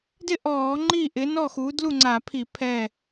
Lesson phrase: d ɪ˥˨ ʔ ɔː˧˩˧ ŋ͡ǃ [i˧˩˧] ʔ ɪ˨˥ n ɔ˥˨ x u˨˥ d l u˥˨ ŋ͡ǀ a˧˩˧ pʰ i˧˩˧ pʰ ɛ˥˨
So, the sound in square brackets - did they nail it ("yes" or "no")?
no